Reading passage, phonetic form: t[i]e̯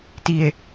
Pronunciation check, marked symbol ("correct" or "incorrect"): correct